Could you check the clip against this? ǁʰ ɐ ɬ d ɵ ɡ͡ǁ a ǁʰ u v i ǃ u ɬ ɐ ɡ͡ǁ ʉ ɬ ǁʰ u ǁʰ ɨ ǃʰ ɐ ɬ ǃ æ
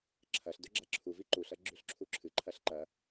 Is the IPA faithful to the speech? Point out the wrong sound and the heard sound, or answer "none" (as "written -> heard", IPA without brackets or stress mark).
æ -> ɐ